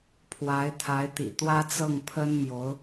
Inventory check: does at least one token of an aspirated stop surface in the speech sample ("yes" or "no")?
yes